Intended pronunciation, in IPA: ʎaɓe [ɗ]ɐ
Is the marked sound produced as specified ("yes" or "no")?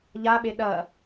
yes